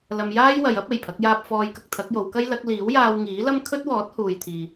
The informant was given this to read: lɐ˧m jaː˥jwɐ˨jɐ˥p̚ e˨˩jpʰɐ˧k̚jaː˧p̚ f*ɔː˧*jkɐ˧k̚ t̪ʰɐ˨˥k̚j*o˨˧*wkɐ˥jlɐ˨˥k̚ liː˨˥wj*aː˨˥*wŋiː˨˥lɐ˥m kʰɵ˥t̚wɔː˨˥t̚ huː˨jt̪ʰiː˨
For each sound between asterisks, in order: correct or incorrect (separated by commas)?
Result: correct, correct, incorrect